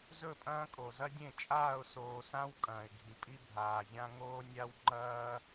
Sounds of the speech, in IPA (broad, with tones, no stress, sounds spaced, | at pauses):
z ɵ˦˨ pʼ ɐ̃ː˦ kʼ o˨ z ɐ˦ dʲ ẽ˦˨ t͡ʃʼ aː˦˨ ʊ̯ s oː˨ s ã˦ w kʼ ɐ̃ː˨ ɪ̯ ɡʱ i˨ pʼ i˦ bʱ aː˨ zʲ ã˦ ŋ oː˦ nʲ a˦ w ŋ͡ǃ ɐː˦